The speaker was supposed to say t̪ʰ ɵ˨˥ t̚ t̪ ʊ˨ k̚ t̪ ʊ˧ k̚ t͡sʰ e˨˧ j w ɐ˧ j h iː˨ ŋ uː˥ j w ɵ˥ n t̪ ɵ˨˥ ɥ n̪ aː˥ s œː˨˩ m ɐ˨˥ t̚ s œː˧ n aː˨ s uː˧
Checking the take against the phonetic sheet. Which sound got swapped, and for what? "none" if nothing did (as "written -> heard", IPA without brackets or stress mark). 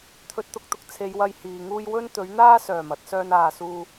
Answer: none